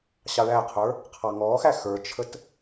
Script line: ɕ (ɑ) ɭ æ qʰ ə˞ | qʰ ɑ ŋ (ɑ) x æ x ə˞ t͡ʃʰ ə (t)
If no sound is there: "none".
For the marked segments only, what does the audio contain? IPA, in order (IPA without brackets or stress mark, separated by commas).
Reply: ɑ, ɔ, t